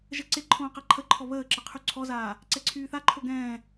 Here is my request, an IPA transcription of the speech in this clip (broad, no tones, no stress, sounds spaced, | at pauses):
ʒ ə ǀ e ǃʰ õː q ɛ ǃʰ ə ǃʰ ɔ β əː ǁ ə qʰ y ǀʰ ɔ z aː | ǀ ɛ ǀʰ yː θ a ǃʰ o ɡ ɛ̃ː